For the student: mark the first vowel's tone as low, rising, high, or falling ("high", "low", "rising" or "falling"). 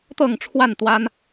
falling